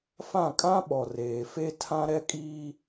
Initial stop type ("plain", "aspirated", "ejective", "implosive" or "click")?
ejective